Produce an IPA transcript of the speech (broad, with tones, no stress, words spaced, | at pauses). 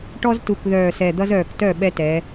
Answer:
ʈɔ˦ztu˨˩k ðœː˨˩sɛ˨˩d̪ʌ˦zœː˨˩k tœ˥˩ɓɛ˦tɛ˩˧